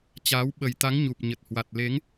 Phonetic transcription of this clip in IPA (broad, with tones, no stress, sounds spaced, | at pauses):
t͡ɕ aː˨˦ w ɓ ə˨˩ j t̪ a˨˦ ŋ ɲ u˨˩ p̚ ɲ ə˨˩ t̚ h w a˨˩ t̚ l e˨˦ ŋ